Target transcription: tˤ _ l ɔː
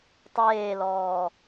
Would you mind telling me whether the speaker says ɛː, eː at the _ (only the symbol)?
eː